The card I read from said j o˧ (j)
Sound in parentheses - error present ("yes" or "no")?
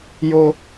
yes